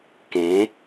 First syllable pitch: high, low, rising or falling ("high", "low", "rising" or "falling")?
rising